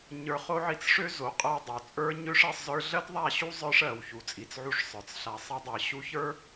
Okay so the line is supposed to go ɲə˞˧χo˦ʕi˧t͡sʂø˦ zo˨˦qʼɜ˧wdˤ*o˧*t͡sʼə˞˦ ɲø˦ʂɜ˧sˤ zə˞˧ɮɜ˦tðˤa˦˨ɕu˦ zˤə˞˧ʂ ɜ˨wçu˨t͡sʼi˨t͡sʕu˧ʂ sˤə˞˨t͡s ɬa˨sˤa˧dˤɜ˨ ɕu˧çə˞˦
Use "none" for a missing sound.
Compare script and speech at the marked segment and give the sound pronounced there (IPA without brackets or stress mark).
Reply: o˨